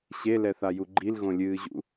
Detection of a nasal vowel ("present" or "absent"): present